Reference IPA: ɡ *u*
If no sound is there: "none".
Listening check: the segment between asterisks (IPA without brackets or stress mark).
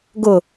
ʊ